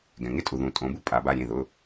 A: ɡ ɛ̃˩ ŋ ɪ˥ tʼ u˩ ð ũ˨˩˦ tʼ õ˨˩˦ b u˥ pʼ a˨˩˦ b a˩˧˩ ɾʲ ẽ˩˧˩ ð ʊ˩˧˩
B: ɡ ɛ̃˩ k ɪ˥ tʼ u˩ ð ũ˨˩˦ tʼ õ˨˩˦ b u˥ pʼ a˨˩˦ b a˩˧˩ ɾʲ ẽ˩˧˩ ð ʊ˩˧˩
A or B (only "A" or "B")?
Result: A